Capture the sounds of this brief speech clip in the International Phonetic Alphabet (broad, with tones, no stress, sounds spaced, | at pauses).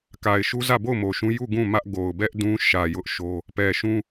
k a˨ ɪ̯ ʃ u˦ z ä˦˨ b o˦˨ ʊ̯ m o˨ ʃ ũ˦ j u˦˨ ɡ ũ˦˨ m ä˦ ʔ ɡ o˨ ʊ̯ b ɛ˦ ʔ d ũ˦ ʃ ä˨ j ʊ˦ ʔ ʃ o˦ | p ɛ˨ ʃ ũ˦